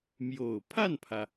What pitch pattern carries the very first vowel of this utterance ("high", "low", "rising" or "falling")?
low